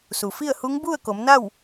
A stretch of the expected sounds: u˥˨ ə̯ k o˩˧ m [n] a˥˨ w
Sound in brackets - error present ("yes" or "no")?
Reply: no